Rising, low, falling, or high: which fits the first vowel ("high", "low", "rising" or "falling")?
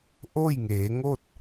falling